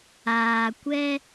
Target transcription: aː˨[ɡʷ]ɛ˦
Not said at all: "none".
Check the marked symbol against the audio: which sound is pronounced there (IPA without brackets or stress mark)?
kʷ